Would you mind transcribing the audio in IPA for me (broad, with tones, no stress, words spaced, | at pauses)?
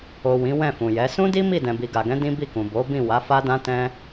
o˨ wĩ˨˦wɛ̃˦˨fũ˨jɛ˨˦ sũ˦di˦ mi˦˨ dɛ̃˨bi˨ɡa˨ɡɛ̃˨˦ dĩ˦bi˦˨kũ˨ bo˨˦bĩ˦˨ wa˨˦fa˦ dã˦tɛ̃˦